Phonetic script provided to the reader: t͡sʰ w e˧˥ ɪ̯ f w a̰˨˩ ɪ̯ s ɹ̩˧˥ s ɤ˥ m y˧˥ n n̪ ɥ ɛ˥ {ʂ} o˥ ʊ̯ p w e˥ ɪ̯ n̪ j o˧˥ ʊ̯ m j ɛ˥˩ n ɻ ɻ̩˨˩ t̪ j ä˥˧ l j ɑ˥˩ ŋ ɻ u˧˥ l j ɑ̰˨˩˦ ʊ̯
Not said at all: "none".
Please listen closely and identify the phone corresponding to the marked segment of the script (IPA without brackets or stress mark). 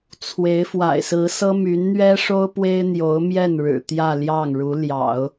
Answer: ʂ